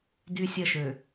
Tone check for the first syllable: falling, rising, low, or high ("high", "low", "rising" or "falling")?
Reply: high